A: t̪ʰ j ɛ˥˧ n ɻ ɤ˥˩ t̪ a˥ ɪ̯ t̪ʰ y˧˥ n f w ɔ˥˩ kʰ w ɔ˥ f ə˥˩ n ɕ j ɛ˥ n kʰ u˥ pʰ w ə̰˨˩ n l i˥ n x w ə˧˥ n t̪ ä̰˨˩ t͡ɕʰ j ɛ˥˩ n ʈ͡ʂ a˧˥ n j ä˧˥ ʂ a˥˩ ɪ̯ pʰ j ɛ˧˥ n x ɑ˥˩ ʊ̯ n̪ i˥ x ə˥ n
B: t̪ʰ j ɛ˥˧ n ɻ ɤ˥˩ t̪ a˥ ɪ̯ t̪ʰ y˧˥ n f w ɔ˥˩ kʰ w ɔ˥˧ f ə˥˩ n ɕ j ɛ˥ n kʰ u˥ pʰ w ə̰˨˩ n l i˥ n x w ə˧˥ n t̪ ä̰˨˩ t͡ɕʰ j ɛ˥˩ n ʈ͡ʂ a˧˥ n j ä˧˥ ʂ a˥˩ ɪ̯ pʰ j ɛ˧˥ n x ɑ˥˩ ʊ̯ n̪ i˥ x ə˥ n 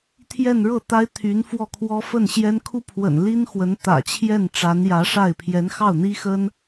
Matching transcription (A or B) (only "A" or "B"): A